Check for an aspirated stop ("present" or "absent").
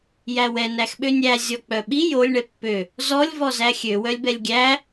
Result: absent